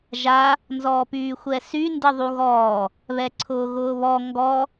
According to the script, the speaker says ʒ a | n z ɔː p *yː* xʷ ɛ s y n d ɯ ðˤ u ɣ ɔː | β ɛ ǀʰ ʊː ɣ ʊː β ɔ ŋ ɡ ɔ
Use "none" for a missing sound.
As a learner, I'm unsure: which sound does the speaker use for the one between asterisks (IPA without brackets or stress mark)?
yː